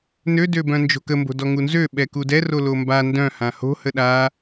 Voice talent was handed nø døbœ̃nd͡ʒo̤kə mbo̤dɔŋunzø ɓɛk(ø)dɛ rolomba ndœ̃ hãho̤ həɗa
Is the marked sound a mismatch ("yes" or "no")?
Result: yes